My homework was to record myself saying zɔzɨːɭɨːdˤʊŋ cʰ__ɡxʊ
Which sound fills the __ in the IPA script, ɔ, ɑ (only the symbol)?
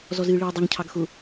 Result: ɑ